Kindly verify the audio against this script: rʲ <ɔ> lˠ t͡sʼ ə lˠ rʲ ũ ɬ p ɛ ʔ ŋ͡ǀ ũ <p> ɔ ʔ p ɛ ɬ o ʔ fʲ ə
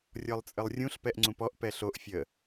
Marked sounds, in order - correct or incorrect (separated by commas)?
correct, correct